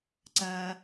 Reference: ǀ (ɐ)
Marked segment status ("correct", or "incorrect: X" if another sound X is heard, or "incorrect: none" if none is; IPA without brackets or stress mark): correct